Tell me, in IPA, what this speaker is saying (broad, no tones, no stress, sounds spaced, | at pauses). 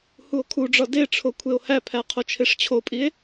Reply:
h u o̯ kʰ u ɖ͡ʐ ɒ d e ʈ͡ʂʰ o kʷʰ e o̯ h æ pʰ æ qʰ o t͡ʃʰ e ʂ t͡ɕʰ o pʼ i e̯